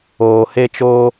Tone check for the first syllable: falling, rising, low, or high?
low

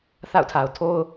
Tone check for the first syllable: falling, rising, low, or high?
falling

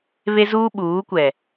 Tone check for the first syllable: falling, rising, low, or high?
high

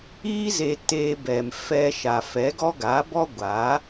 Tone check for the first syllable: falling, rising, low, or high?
high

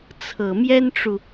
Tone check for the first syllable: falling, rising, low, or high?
low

